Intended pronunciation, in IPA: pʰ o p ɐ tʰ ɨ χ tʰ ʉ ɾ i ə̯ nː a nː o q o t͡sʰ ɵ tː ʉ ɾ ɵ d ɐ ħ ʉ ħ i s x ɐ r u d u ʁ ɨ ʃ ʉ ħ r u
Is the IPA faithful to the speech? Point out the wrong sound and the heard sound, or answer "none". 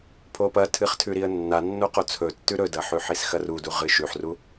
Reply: none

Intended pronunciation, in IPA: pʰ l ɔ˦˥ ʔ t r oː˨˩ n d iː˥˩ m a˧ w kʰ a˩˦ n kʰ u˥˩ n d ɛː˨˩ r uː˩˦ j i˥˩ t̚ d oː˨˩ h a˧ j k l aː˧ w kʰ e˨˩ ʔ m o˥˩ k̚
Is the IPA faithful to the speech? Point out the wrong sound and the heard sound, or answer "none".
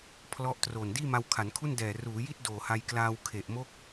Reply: none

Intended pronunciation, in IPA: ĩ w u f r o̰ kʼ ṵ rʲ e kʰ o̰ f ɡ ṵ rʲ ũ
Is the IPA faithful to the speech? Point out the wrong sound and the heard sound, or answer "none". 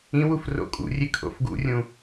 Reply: none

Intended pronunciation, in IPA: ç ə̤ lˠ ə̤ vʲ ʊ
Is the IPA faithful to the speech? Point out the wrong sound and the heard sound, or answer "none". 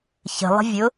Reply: none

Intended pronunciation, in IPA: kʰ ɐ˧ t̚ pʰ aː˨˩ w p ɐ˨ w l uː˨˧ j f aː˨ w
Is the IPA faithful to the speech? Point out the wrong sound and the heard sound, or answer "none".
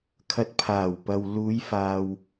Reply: none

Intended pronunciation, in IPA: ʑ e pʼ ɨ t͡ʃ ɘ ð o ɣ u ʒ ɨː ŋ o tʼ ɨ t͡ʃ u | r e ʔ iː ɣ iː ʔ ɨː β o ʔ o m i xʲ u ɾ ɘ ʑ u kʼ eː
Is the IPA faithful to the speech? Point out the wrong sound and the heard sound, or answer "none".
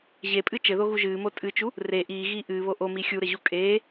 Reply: ŋ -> m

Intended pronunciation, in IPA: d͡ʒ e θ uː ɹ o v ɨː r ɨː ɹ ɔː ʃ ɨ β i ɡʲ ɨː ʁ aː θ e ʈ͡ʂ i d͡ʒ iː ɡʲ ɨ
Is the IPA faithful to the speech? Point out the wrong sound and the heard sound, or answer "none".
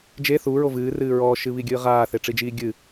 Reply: none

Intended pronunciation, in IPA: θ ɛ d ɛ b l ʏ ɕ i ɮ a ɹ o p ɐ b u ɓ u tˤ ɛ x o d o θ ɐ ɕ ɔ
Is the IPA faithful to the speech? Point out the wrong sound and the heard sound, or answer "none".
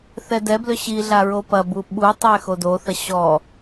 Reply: none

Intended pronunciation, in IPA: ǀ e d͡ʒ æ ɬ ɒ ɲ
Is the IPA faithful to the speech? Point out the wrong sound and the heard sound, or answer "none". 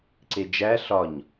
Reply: none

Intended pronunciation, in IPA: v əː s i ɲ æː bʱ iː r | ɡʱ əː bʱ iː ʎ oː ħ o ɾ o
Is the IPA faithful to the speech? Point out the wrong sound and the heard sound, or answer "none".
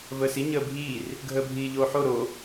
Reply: æː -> əː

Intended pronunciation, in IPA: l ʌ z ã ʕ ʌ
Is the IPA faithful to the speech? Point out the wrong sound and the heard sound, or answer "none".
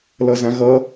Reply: ʕ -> ɣ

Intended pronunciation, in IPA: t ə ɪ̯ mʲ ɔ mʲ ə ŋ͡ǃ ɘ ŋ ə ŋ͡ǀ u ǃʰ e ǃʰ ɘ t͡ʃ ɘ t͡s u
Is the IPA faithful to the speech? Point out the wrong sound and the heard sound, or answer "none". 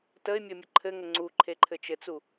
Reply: ŋ͡ǃ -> ǃʰ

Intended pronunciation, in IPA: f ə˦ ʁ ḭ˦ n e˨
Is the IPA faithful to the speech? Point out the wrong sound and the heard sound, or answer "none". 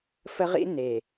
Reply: none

